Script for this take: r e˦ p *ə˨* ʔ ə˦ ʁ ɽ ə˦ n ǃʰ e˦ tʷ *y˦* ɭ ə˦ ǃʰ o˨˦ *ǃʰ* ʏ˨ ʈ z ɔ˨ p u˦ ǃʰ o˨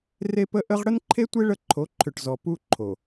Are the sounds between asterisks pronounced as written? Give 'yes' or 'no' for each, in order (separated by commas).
no, no, yes